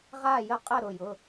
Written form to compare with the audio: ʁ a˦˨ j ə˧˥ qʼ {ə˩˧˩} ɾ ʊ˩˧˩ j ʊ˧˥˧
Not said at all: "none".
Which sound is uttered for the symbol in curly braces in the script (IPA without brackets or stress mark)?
ə˦˨